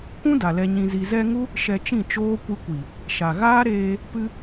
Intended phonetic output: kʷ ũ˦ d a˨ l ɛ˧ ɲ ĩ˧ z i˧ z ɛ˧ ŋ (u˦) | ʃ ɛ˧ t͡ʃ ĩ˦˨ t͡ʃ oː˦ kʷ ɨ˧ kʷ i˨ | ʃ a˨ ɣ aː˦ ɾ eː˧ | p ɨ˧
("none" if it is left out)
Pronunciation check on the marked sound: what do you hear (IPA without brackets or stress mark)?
u˦